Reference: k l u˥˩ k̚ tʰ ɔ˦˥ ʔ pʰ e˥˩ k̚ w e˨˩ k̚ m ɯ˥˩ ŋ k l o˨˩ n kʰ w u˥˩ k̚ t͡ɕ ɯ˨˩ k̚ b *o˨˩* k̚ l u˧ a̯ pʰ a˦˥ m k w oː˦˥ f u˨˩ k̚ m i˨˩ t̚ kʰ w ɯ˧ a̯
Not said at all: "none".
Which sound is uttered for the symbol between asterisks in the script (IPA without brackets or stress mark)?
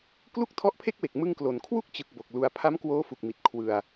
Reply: o˨˩